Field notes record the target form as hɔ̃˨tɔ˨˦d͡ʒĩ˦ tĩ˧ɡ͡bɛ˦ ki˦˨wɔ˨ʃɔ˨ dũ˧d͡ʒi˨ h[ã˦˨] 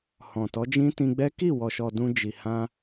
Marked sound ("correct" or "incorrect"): incorrect